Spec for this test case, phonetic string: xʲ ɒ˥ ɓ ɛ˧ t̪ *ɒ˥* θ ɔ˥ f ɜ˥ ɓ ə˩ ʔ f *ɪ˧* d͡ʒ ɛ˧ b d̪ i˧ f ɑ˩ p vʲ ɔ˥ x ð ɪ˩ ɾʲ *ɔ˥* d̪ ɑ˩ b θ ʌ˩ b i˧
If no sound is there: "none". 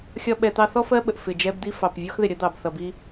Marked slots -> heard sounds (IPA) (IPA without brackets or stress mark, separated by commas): ɑ˥, ɪ˩, ʌ˥